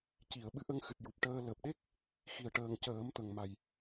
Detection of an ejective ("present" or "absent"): absent